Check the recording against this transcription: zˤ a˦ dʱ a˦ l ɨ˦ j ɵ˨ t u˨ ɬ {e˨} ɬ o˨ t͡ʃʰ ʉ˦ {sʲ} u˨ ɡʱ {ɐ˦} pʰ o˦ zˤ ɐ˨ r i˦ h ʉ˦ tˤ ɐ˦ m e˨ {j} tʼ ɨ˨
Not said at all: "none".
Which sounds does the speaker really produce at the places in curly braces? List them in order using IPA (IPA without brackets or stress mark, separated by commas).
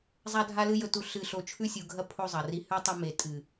ɨ˨, sʲ, ɐ˦, none